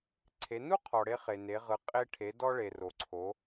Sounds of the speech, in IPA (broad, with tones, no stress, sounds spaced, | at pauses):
ǀʰ e˩˧ n u˥ qʰ ɔ˩ ɽ e˧ χ e˩ n e˩˧ ʁ ɯ˩˧ qʼ e˧ ʈʰ e˩˧ d ɔ˧ ɭ e˩ r o˩ ǀʰ o˩˧